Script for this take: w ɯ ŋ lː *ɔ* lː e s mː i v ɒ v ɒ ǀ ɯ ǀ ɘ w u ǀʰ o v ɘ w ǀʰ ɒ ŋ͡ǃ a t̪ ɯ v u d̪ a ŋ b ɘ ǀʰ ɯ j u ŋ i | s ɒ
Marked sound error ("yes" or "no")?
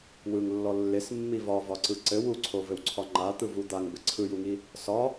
no